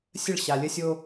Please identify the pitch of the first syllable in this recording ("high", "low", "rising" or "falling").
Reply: falling